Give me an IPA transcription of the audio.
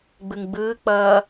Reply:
ɡ͡b ɯ ŋ ɡ͡b ɯː k͡p ʌː

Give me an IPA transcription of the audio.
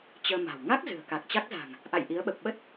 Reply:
t͡ɕ əː˧ m a̤˨˩ w ŋ a˦˥ k̚ z ɨ̤˨˩ ə̯ k a˨˩ k̚ t͡ɕ a˦˥ k̚ z a̤˨˩ ŋ | ʔ a̰˧˨ j ʔ i˨˦ ə̯ ɓ ə˨˩ p̚ ɓ ə˦˥ t̚

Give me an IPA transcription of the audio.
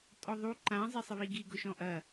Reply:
tʼ ɔ ðˤ u ǃ ã zˤ e sˤ ə β i ɡ i ɡ ʊ ʃ ɔ̃ ʔ ɐ

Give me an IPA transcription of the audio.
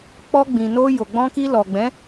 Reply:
k͡p ɔ˧ ɡ͡b ĩ˨ n o˧ j o˨ ɡ͡b ɔ̃˧ k i˧ l ɔ˨ ɡ͡b ɛ̃˨˦

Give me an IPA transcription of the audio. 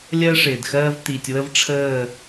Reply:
lʲ ɜ˦ ʂ ɪː˨ d x ɜː˦ v t̪ i˨ tʲ w ə˦ v ʈ͡ʂʰ əː˦˨

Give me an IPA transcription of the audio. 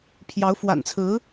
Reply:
pʰ j ɑ˧˥ ʊ̯ f w a̰˨˩ n t͡sʰ ɹ̩˧˥

